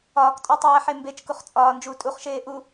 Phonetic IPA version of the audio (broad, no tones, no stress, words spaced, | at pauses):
ɒːktʼɒtˤæːħe mbet͡ʃkuχ t͡sʼɒːnd͡ʒuː tʼuχʃeː ʔu